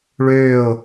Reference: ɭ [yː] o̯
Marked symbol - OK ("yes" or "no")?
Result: no